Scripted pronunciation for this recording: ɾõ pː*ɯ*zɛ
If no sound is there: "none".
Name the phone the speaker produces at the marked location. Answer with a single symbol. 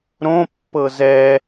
ɤ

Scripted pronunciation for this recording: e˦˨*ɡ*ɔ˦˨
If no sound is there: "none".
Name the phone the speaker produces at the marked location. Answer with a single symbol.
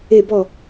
b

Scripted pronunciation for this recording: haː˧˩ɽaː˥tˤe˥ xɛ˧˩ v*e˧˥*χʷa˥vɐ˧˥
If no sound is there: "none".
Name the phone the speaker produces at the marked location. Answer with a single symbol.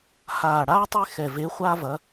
e˧˥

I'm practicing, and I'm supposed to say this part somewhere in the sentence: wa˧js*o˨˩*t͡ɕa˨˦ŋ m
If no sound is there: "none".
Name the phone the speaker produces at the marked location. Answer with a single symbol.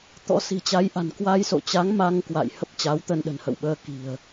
o̰˧˨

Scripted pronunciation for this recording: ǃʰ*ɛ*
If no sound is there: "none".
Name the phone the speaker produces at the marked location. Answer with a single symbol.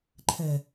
ɛ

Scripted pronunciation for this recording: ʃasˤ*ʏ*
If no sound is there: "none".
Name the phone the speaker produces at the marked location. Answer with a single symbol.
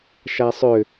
ʏ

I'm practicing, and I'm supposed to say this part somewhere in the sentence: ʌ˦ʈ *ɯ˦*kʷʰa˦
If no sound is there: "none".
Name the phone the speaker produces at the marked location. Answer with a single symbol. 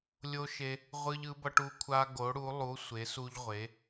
u˦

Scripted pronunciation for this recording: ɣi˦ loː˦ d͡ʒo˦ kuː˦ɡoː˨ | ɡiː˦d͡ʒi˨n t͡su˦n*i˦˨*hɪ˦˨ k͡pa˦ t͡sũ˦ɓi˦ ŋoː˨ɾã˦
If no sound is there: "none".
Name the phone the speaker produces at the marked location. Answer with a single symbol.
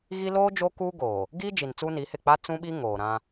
i˨˦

